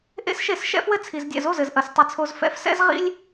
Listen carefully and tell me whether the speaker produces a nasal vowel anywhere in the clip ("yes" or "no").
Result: no